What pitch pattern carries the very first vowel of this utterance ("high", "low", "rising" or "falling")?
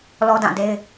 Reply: high